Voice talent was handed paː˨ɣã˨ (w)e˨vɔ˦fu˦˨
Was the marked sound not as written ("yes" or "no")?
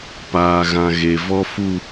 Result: yes